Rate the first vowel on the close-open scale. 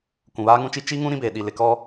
close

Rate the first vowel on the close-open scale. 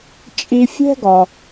close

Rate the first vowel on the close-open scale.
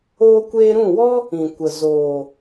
mid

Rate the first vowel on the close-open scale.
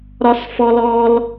open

